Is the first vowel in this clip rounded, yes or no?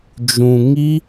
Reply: yes